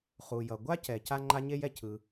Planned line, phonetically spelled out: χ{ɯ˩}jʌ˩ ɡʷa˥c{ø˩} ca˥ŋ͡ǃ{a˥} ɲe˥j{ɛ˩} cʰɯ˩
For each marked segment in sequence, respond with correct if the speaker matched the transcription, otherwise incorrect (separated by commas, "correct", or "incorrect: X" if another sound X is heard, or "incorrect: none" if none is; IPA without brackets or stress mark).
incorrect: u˩, incorrect: ɛ˩, correct, correct